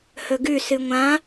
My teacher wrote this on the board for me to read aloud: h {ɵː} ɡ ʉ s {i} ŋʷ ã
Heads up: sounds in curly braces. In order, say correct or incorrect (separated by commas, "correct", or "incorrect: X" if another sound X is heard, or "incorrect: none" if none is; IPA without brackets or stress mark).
incorrect: ɵ, incorrect: ɨ